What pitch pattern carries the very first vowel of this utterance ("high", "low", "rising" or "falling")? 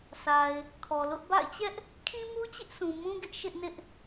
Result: low